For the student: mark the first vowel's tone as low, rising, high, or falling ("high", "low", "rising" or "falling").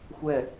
falling